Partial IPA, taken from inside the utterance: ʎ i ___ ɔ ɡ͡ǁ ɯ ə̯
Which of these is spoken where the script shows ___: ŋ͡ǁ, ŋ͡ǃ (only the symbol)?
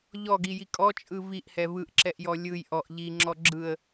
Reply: ŋ͡ǁ